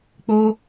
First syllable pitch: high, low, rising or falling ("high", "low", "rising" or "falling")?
high